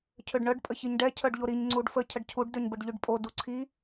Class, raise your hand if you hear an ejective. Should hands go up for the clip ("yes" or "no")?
yes